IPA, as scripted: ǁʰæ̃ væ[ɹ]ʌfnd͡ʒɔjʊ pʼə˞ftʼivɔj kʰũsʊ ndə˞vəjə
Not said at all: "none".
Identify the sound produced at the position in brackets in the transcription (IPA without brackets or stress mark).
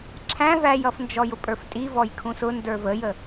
j